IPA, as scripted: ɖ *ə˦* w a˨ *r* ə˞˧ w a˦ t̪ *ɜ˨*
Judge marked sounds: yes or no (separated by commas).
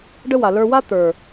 yes, no, no